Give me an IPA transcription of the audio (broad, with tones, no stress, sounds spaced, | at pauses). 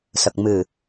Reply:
s ə˨˩ k̚ m ɨ˨˩